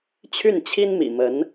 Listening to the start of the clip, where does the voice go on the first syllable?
falling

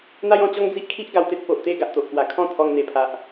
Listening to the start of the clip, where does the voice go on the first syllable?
high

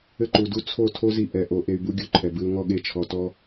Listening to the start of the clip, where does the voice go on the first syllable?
high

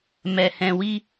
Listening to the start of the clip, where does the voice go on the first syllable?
low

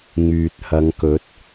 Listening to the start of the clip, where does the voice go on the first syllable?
low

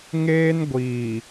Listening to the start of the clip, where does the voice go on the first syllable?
high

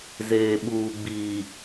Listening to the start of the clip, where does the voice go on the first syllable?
low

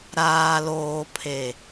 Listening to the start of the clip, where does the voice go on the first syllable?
low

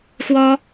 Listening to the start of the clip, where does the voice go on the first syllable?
high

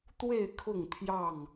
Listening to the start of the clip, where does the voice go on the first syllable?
falling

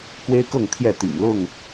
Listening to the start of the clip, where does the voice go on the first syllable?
high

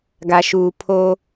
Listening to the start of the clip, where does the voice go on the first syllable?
low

